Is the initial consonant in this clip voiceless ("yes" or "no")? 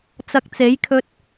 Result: yes